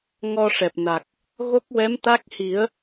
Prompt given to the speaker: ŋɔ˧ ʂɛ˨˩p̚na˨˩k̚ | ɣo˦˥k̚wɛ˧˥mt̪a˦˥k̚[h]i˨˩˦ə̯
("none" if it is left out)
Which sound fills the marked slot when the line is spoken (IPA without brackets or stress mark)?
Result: h